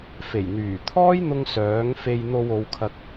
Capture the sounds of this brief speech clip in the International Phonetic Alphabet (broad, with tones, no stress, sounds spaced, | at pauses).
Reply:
f e˨˩ j n̪ yː˨˩ t̪ʰ ɔː˥ j n̪ ʊ˧ ŋ s œː˨˥ ŋ f e˧ j n̪ o˧ w o˨˧ w kʰ ɐ˧ k̚